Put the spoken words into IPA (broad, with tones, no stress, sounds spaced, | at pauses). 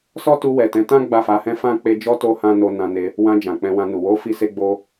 s ɔ˦ t u˧ w ɛ˨ t ɛ̃˨˦ t ã˦ ɡ͡b a˦˨ f a˨˦ h ɛ̃˦ f ã˦ k͡p e˧ d͡ʒ ɔ˦ t o˦ h ã˦ n o˧ n ã˧ n e˧ | w ã˧ d͡ʒ ã˨ k͡p ɛ̃˧ w ã˧ n u˨ w o˨˦ f i˦ s e˦ ɡ͡b o˦